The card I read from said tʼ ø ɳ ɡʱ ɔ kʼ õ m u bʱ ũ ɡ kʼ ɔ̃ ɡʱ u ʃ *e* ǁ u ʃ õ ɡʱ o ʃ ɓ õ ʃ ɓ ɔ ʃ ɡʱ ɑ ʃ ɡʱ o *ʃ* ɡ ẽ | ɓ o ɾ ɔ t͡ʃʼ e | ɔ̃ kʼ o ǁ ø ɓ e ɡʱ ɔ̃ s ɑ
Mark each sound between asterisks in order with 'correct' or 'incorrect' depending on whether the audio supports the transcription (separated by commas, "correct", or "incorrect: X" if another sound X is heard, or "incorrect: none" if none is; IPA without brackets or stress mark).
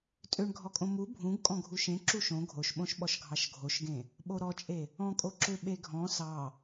incorrect: ẽ, correct